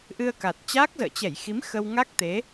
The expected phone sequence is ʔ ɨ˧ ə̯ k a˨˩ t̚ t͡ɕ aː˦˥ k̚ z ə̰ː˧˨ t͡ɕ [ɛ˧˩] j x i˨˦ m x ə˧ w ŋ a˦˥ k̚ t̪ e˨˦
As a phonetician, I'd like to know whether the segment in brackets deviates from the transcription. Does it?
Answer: no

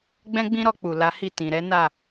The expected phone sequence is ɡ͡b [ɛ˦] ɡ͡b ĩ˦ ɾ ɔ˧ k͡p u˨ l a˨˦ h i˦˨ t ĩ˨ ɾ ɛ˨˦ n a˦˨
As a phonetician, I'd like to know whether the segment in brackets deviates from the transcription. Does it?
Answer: yes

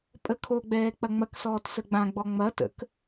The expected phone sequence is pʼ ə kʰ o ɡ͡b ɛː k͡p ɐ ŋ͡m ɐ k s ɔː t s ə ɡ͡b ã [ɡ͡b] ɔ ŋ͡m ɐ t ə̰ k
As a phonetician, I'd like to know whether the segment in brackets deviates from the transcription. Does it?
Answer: no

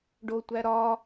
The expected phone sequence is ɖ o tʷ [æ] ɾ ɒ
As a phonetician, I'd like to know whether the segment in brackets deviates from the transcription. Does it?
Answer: no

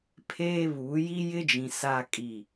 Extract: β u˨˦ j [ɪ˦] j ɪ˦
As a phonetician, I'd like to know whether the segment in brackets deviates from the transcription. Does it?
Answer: yes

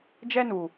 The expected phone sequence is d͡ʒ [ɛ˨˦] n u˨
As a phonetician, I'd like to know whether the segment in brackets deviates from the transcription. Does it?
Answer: yes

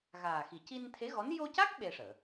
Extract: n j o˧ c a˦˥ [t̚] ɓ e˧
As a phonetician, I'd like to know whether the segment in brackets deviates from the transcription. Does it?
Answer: yes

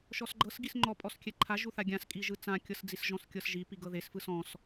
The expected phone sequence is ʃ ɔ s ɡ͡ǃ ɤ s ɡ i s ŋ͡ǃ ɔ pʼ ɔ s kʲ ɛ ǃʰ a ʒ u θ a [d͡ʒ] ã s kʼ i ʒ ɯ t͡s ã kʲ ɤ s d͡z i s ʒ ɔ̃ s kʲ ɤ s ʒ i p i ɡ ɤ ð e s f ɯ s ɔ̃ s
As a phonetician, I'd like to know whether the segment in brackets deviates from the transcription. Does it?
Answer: yes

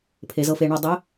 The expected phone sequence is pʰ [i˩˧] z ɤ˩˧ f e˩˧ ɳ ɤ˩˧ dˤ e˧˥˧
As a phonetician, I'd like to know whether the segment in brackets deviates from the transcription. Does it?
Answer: yes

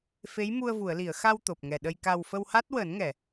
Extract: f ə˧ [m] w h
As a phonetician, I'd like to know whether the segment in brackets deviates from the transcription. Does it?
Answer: yes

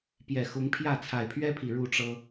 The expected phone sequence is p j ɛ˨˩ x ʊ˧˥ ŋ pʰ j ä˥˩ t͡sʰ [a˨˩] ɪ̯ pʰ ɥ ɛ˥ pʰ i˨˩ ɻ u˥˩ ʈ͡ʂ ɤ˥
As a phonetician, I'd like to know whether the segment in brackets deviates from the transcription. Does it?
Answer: no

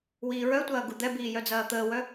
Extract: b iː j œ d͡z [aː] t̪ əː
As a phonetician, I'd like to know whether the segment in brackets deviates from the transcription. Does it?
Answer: yes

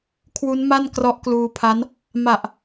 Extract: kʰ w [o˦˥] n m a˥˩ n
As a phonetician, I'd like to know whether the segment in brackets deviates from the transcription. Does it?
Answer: yes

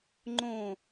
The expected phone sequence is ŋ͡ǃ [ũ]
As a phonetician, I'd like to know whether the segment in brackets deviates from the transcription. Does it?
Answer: yes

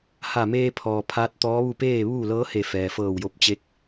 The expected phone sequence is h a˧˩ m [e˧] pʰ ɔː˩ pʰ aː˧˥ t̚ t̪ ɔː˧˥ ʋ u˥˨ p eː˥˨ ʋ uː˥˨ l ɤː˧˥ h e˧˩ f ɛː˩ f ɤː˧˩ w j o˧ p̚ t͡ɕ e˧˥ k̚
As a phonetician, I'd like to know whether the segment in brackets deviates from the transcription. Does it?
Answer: yes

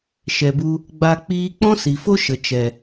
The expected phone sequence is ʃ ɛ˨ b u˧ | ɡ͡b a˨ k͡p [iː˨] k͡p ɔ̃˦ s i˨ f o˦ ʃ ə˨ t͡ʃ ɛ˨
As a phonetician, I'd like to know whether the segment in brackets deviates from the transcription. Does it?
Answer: yes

